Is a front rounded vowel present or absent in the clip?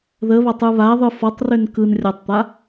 present